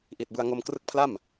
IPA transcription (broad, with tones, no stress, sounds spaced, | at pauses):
ʔ i˨˩ t̚ b ɯ˧ a̯ ŋ o˧ m k r ɯ˦˥ k̚ pʰ l a˥˩ m